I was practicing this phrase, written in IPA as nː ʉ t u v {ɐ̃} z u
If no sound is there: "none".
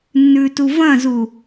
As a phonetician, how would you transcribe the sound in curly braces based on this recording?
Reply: ɐ̃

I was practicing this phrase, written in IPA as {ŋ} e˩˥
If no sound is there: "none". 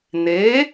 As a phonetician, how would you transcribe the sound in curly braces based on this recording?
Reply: n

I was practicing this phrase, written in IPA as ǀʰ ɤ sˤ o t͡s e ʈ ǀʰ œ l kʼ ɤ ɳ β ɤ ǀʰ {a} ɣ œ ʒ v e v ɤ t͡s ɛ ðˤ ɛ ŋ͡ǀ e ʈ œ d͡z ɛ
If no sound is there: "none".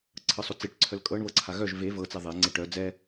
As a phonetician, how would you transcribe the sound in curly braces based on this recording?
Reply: a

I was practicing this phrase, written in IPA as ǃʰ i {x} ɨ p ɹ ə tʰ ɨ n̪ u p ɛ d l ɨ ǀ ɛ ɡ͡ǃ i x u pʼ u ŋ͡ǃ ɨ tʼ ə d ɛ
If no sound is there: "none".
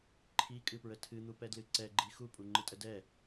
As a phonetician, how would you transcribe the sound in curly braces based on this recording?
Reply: kʼ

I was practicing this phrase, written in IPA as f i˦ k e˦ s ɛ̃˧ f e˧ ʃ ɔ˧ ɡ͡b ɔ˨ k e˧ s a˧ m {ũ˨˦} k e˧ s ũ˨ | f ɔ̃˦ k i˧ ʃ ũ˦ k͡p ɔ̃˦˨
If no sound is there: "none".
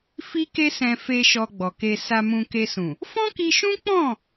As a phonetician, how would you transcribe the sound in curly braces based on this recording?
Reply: ũ˧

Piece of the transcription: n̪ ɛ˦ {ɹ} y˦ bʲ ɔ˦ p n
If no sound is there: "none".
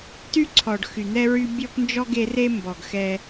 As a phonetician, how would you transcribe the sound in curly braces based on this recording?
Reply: ɹ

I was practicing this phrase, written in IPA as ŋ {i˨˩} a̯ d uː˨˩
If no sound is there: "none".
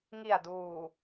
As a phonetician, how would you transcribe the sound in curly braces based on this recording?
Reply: i˨˩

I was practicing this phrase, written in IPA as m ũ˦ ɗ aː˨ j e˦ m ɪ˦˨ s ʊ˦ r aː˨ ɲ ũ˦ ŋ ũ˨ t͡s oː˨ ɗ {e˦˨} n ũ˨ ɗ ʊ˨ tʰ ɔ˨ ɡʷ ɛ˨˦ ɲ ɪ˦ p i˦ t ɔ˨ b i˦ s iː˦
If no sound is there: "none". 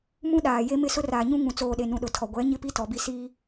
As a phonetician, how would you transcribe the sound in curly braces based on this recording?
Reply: e˨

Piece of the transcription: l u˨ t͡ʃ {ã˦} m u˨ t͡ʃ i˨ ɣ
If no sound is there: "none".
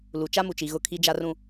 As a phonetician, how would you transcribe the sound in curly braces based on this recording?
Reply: a˦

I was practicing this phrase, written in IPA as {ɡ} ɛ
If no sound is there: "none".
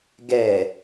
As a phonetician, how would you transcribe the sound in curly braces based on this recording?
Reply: ɡ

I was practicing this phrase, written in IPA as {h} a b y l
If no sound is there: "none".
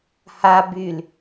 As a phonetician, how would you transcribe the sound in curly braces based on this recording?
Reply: h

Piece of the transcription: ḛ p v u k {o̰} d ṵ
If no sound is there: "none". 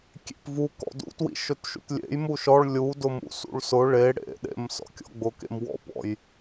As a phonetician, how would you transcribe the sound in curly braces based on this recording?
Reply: ɔ̰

